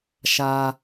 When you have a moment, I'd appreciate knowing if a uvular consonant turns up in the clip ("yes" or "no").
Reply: no